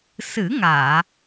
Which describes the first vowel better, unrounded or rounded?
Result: unrounded